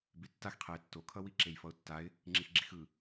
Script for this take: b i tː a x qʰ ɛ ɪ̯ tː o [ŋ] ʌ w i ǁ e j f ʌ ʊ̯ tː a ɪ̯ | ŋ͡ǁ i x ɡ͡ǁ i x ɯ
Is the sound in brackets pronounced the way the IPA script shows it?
no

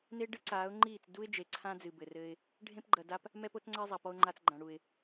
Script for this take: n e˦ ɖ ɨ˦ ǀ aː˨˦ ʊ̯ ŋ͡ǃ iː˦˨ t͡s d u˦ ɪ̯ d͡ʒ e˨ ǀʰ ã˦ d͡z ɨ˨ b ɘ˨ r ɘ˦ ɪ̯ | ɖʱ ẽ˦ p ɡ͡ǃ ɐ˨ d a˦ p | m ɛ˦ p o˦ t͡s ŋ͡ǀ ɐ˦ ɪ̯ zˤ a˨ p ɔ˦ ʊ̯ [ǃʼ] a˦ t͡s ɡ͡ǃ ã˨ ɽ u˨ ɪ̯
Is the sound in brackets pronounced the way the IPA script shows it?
no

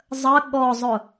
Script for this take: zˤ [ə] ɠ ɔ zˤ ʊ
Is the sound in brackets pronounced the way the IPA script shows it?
yes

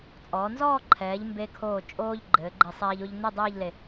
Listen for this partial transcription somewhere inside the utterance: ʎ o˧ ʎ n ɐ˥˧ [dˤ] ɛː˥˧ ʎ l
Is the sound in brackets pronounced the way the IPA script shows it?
yes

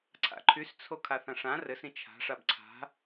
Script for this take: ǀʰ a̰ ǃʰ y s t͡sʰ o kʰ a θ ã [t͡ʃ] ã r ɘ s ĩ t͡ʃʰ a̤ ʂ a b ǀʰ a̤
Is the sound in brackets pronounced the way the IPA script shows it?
no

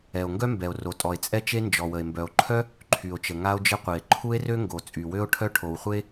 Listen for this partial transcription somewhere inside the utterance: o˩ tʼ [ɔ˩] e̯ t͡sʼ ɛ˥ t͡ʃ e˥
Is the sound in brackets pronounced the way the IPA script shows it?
yes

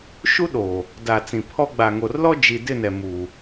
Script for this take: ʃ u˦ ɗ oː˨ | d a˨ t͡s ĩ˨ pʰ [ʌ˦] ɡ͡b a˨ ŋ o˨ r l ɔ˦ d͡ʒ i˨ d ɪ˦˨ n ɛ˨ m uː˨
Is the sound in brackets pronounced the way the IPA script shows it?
no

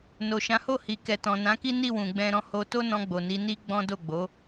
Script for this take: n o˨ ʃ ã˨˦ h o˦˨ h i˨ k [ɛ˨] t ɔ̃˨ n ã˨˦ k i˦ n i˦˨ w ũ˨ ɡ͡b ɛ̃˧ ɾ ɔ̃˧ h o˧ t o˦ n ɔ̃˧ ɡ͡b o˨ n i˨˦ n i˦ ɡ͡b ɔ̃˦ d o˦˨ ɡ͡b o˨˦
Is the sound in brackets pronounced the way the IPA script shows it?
yes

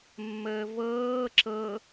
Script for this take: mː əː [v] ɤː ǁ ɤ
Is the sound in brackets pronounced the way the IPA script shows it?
yes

